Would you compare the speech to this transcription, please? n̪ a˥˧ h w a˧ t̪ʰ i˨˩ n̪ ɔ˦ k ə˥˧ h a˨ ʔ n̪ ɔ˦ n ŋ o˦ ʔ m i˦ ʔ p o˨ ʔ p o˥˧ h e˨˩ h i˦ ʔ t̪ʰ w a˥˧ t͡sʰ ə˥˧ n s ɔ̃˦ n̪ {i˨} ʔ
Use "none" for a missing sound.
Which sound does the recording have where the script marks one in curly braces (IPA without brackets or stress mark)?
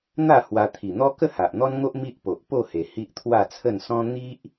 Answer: i˦